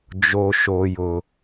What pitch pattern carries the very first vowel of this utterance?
high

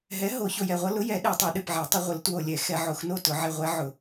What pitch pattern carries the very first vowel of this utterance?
rising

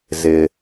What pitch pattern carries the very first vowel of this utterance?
low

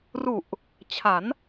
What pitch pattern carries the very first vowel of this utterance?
low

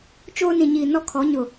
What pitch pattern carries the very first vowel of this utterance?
high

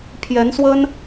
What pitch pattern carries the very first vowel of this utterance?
rising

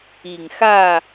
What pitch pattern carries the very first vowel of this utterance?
low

